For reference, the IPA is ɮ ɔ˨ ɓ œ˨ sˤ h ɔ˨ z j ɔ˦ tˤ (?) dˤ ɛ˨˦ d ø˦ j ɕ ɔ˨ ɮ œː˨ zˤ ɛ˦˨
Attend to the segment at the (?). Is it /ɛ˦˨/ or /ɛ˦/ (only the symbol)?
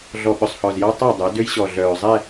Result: ɛ˦˨